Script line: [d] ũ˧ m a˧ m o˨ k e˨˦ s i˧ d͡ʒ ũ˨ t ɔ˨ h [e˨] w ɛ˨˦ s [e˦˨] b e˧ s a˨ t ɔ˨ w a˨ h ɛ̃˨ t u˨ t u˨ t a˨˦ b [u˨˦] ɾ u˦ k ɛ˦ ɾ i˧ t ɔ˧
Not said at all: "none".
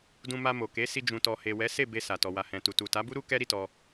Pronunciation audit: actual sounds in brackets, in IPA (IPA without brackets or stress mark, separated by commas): d, e˨, e˦˨, u˦